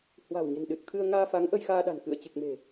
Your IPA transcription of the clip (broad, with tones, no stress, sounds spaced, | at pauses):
h w a̤˨˩ w ɲ ə̤˨˩ n ɗ ɨ˨˩ t̚ t̪ʰ ɨ˧ ə̯ ŋ aː˧ f a˨˦ ŋ ʔ ə˧ j x aː˧ ɗ a̤˨˩ n k ɨ̰˧˨ ə̯ t͡ɕ ɨ˨˩ k̚ m e̤˨˩